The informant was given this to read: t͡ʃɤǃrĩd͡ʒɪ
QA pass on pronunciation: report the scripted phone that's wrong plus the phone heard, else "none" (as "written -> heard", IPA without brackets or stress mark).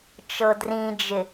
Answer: ǃ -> d